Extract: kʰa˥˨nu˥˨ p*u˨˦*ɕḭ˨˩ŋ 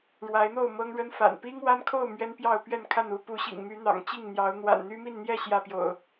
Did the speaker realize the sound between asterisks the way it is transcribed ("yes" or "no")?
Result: yes